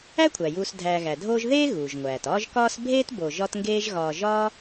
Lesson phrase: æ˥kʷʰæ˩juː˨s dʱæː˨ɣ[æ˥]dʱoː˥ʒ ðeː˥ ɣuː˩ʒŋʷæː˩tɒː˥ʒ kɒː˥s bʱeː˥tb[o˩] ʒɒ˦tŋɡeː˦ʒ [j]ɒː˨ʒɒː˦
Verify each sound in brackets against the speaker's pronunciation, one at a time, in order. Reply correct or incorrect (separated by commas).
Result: incorrect, incorrect, incorrect